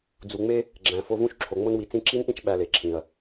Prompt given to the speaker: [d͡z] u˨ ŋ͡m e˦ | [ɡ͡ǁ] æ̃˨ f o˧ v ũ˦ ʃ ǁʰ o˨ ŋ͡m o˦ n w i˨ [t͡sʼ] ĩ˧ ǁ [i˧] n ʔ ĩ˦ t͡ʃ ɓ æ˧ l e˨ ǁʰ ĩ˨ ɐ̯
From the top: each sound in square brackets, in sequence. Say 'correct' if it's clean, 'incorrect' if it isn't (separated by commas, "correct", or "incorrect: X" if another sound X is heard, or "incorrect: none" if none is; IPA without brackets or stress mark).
correct, correct, incorrect: t͡s, incorrect: i˦